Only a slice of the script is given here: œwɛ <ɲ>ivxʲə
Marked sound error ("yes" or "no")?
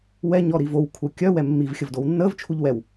yes